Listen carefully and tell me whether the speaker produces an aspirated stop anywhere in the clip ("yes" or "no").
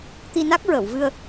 no